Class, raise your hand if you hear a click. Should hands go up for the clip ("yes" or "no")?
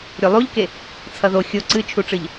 yes